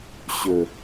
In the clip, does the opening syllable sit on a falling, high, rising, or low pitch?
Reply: low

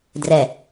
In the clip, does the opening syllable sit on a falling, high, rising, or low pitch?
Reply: low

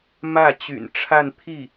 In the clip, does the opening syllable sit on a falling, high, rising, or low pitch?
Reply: falling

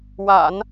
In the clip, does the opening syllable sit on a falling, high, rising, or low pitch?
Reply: low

